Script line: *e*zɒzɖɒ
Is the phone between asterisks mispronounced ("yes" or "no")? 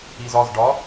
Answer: yes